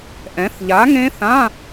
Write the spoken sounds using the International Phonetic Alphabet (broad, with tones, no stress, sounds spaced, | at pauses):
ʔ ɛ̃˨˥ θ ʎ a˨˥ ŋ ẽ˦˥ θ ã˧˥˧